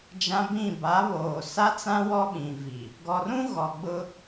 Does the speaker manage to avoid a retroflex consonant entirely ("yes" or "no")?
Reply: yes